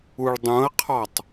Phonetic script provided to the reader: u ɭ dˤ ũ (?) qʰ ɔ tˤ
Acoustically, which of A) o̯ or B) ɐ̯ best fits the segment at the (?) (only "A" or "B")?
B